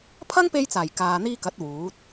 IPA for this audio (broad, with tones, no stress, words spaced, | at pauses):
pʰɐ˥ŋpe˧jt͡saː˨˩j kaː˨n̪iː˧kɐ˨˥t̚ wuː˨˥t̚